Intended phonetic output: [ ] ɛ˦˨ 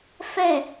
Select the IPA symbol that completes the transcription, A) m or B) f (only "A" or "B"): B